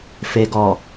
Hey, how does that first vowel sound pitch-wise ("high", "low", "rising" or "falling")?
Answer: low